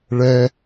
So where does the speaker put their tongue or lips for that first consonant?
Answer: retroflex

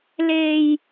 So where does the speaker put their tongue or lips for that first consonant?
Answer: tongue tip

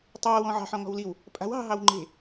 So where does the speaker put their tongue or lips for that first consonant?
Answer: tongue tip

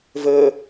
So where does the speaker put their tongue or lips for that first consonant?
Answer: lips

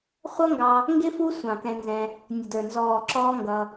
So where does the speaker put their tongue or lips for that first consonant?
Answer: uvula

